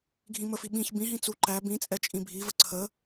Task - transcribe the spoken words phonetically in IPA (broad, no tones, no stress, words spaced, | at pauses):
ɡʱĩməfi ɓĩç bĩɦĩ t͡su ǃæ bĩ t͡sʼɛt͡ʃʼĩbʱivə ǀʰə